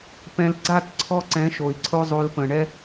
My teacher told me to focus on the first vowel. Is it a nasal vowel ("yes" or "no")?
yes